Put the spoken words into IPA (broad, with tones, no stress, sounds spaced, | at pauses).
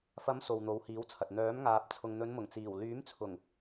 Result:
f ɐ˨˥ m s o˨ w n̪ o˨˧ w h iː˨˥ w t͡sʰ ɐ˨ t̚ n̪ œː˨˥ m ŋ aː˨ p̚ t͡sʰ ʊ˨ ŋ n̪ ɵ˨˧ n m ʊ˨˩ ŋ t͡s iː˨˩ w l yː˨˥ m t͡sʰ ʊ˨˩ ŋ